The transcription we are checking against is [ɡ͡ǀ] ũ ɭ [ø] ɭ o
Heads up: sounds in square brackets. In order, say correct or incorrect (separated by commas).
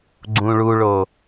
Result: correct, incorrect